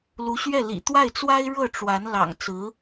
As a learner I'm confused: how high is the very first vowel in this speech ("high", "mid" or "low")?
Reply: high